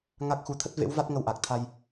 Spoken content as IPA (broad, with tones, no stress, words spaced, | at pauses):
ŋa˦˥k̚xu˧ t̪ʰə˦˥t̚vḛ˧˥w va˦˥t̚ŋə˧wʔa˨˩k̚t̪ʰa˧j